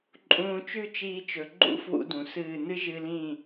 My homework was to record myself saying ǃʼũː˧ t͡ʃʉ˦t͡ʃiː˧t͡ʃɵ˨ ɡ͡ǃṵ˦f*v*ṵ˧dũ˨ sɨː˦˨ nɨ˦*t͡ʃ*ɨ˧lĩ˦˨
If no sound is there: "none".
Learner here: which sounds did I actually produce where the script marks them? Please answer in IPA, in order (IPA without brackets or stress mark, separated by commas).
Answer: w, ʒ